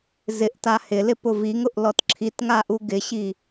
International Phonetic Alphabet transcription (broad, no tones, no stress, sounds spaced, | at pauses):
z ɪ ʔ t a h ɪ l ɪ p ʊ v i ŋ ʊ ʔ l ɔ t ǁʰ i t ŋ a ʔ u ɡ ɪ ɕ i